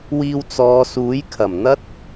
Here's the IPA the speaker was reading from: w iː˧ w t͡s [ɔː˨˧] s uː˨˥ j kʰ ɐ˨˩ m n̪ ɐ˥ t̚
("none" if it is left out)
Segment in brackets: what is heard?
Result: ɔː˨˧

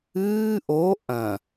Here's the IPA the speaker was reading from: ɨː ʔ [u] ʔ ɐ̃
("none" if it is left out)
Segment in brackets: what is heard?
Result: o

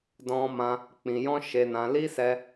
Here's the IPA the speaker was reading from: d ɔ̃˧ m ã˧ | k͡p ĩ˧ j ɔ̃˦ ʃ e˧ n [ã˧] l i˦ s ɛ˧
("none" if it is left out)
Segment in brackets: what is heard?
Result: ã˧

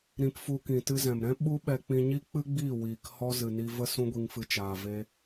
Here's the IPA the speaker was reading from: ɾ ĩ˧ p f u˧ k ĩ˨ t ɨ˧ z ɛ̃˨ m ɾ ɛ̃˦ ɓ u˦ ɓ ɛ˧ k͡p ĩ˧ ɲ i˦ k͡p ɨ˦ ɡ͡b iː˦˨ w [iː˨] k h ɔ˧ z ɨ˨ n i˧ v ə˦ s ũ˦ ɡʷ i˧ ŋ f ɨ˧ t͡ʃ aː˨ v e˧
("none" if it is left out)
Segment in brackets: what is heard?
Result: iː˨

